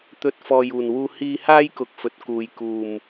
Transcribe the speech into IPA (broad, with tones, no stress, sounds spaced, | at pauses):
t̪ ɵ˧ t̚ f ɔː˨ j uː˨˩ n w uː˧ h iː˧ h aː˥ j k ʊ˧ k̚ f ɵ˨ t̚ k uː˨ j k uː˨˩ m